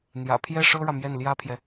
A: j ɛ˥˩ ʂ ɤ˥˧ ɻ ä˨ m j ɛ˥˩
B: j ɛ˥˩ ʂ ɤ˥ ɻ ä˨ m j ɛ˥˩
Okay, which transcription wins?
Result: B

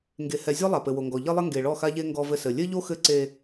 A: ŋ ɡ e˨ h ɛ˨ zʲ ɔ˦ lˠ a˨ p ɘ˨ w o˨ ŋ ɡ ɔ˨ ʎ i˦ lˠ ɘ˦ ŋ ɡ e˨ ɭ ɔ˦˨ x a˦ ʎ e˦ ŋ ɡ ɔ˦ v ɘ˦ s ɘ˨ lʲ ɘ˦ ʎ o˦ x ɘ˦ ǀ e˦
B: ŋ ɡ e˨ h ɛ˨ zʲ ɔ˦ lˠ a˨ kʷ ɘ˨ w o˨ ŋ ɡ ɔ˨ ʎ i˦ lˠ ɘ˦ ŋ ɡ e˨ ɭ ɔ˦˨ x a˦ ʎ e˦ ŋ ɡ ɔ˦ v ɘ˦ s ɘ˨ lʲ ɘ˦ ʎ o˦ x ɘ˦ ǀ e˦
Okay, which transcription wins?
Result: A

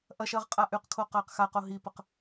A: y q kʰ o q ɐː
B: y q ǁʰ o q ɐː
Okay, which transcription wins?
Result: A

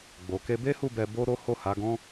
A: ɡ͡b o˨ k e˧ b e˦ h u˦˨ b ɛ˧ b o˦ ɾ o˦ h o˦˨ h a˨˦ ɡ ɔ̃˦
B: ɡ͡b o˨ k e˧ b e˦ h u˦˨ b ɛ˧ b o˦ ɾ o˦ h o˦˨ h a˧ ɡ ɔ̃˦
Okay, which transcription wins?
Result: A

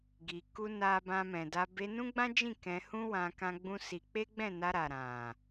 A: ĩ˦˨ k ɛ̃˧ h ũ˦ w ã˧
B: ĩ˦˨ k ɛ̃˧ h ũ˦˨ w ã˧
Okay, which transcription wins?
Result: A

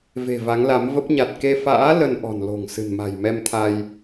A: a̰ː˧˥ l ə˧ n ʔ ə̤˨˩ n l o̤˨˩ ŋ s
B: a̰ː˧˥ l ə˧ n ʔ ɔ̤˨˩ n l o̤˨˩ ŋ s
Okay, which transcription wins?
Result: B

